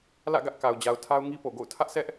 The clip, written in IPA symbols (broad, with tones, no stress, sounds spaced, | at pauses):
l ä̰˦˨ ɡ ä˦ ʔ k a˨ ʊ̯ d͡ʑ a˨ ʊ̯ tʰ a˦ ʊ̯ ŋ i˦ p o˨ ɡ o̰˦˨ ʊ̯ tʰ ä˦ ʔ sʰ ɛ˦ ʔ